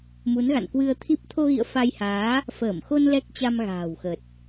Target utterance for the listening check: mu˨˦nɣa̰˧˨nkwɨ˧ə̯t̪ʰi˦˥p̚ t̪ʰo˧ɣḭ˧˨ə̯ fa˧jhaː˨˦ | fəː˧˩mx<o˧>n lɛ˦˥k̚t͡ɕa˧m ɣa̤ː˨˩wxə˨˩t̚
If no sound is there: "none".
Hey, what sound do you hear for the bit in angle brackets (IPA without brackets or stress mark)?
o˧